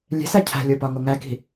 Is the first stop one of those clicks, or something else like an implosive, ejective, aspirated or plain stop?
aspirated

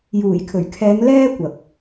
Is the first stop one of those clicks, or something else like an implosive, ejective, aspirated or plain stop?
aspirated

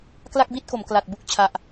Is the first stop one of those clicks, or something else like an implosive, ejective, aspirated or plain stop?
plain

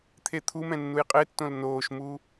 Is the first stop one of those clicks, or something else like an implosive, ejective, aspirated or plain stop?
aspirated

